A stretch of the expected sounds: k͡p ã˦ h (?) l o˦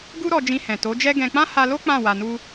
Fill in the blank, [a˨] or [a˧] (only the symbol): a˧